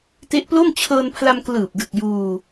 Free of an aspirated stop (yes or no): no